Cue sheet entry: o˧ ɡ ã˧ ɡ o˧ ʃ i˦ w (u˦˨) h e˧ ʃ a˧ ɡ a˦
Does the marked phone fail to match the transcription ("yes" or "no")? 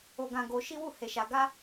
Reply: no